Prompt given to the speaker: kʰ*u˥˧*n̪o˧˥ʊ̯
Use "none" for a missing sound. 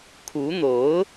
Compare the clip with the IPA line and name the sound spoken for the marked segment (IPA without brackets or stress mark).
u˧˥